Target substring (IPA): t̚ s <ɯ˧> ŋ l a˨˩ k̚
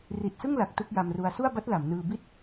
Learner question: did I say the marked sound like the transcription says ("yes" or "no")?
no